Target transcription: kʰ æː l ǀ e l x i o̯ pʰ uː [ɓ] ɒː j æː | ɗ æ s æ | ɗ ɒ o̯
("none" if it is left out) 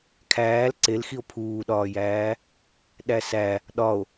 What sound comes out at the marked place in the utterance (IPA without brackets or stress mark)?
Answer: ɗ